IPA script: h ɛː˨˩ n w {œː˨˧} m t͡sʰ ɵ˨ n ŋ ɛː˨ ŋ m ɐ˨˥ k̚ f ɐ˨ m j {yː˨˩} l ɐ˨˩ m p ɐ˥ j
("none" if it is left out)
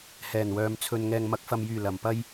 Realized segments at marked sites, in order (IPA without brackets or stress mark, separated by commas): œː˨˧, yː˨˩